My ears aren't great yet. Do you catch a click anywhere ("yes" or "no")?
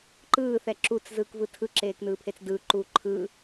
yes